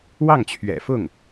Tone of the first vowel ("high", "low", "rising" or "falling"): falling